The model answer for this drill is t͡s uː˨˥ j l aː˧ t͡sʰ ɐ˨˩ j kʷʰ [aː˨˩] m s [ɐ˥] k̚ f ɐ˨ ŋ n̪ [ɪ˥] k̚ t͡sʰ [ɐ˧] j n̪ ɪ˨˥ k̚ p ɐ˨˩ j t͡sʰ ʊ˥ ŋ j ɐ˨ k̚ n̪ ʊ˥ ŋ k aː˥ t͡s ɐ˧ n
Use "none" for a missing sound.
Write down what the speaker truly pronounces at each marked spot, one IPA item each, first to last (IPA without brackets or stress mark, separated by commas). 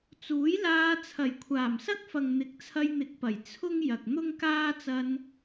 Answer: aː˨˩, ɐ˥, ɪ˨˥, ɐ˧